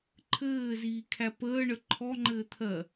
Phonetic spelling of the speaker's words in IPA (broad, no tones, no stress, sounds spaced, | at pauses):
ǃʰ ɘː z iː kʰ æ p əː ɳ ə ǃʰ ɔ ŋ͡ǃ ɘː t̪ʰ ɜ